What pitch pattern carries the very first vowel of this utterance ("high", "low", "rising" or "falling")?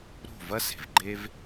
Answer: falling